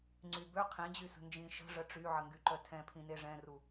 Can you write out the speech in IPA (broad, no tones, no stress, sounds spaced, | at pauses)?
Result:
ŋ͡ǀ y b ø qʰ ĩ d͡ʑ y s ə̤ n d͡ʒ ĩ ʃ ə̤ ʐ ə ʈ͡ʂ y ʕ ə ŋ ɡ y ǃ œ tʰ ɛ̃ pʰ ĩ n e ʐ ɛ̃ r u